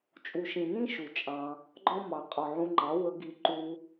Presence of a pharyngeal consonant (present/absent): present